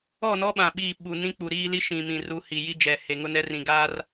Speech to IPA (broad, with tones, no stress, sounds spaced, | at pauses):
ɔ˦˨ n ɔ˦ ɓ ã˨ ɓ iː˦˨ ɓ u˨ n ĩ˦ k͡p u˨ ɾ iː˦ l i˦ ʃ ĩ˨ m ĩ˨ r u˨˦ h i˨ j i˦ d͡ʒ ɛ˨ h e˨ ŋ ʊ˦ n ɛ˦ r ĩ˨ ɡ aː˦ r